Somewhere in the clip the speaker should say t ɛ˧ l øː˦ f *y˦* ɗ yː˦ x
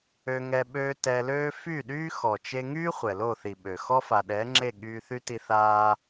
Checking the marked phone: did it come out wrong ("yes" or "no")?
yes